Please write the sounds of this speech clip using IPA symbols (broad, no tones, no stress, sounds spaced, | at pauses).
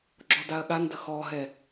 ɡ͡ǁ ɔ d a ɐ̯ ɠ a n d ə x ɔ ɦ ɛ